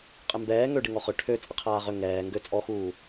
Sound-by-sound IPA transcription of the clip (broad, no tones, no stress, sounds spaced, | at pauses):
qʼ ɪ m b ɛː ŋ ø ɖ ɪ ŋ ɔ χ ʏ ʈʰ ø t͡sʼ ɪ qʰ aː ʁ ʏ ŋ ɛː ŋ ɡ ø t͡sʼ ɔ x uː